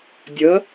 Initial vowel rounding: unrounded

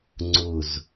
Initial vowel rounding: rounded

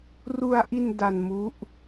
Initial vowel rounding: rounded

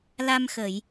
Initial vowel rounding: unrounded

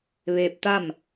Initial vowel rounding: unrounded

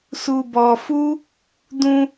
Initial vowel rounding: rounded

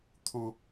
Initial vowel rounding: rounded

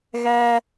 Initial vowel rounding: unrounded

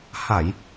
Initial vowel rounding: unrounded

